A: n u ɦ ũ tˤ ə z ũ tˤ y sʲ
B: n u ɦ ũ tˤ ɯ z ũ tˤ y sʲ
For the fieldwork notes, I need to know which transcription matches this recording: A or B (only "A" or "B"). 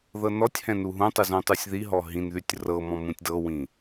B